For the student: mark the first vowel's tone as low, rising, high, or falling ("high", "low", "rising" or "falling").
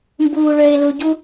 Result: low